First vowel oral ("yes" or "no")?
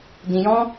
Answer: no